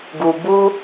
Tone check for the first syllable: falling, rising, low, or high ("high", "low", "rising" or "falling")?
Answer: low